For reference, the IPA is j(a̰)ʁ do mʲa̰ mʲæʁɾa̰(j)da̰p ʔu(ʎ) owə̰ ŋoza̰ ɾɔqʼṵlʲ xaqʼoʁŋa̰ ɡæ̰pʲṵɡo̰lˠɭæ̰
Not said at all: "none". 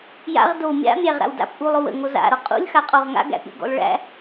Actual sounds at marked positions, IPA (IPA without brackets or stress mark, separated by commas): a̰, w, lˠ